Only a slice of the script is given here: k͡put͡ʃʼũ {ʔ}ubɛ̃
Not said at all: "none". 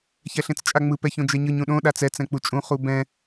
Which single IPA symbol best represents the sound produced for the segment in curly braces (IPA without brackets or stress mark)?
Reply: χ